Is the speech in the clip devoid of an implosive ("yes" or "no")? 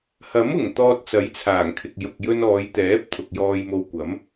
yes